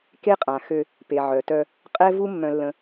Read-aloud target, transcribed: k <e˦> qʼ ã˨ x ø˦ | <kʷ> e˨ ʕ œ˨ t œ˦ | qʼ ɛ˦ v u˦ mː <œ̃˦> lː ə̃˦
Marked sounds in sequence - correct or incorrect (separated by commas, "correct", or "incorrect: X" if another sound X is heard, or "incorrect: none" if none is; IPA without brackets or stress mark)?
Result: correct, incorrect: p, correct